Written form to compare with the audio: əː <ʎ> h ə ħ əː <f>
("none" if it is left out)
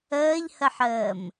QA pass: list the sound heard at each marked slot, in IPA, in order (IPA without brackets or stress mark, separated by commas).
ʎ, m